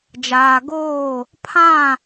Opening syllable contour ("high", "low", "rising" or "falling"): low